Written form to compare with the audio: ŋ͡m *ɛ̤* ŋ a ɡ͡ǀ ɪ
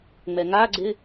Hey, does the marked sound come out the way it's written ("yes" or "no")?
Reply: no